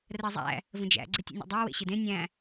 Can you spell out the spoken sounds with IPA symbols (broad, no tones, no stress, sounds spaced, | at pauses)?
r ɜ zˤ æ̰ | v ə̃ d͡ʒ æ̰ ɡ͡ǀ e tʲ ḛ nʲ o̰ dˤ æ w ḛ ɕ ɨ d ẽ nʲ æ̃